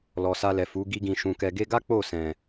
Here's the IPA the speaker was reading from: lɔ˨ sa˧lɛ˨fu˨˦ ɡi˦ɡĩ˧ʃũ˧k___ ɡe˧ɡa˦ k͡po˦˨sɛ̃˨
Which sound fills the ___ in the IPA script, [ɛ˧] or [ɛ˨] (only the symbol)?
ɛ˧